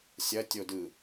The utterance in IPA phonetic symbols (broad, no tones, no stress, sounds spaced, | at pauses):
sʲ ɐ tʲ o d ɯ